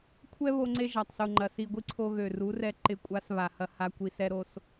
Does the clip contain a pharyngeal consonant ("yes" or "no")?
no